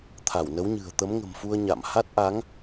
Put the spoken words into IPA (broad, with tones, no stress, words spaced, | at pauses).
t̪ʰa˧˩wnə˨˦wɲɨ̤˨˩ə̯ t̪ə˨˦mŋə̤˨˩mfu˧ə̯ ɲa̰˧˨m ha˦˥t̚ʔa˨˦ŋ